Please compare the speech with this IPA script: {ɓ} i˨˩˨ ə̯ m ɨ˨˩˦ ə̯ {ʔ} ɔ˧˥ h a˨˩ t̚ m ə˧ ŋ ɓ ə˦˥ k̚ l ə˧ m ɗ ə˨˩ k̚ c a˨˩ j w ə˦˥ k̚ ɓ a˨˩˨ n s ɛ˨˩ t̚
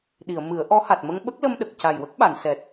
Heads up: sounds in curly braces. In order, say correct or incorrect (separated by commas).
incorrect, correct